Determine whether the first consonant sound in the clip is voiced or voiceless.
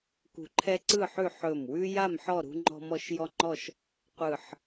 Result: voiceless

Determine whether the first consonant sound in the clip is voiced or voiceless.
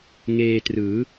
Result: voiced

